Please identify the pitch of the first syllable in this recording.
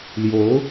rising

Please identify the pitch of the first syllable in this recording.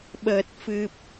low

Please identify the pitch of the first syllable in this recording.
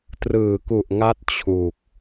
low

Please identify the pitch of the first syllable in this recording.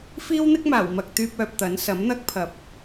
high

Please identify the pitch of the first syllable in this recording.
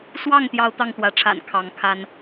falling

